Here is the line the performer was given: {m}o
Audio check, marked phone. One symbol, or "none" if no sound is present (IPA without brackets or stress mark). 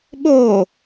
ɓ